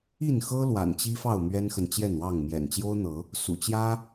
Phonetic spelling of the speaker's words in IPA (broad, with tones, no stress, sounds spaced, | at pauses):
i˥˨ n x ɤ˦ l w a̰˨˩ n t͡ɕ i˦ f ɑ˥˨ ʊ̯ m ɥ ɛ˦ n x ə˨ n t͡ɕ j ɛ˥˨ n w ɑ˥˨ ŋ m j ɛ̰˨˩ n t͡ɕ j o˦ ʊ̯ n̪ ɤ˨˦ | s ṵ˨˩ t͡ɕ j ä˦